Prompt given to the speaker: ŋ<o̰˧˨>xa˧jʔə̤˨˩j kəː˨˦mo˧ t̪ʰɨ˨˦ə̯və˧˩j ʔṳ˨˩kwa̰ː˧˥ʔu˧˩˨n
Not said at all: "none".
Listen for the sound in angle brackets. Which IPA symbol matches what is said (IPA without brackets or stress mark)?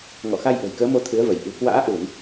ɔ̰˧˨